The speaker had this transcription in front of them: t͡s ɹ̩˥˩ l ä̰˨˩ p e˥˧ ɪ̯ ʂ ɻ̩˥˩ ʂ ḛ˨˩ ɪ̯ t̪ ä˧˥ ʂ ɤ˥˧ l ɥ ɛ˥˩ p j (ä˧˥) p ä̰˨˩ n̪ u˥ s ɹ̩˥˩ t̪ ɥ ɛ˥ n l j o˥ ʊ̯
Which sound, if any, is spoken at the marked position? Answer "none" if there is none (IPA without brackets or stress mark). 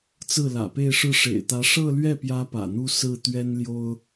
ä˧˥